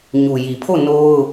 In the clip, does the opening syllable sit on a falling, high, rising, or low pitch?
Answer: low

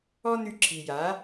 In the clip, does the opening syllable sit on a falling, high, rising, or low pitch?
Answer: high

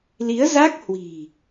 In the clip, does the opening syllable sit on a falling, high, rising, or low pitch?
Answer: rising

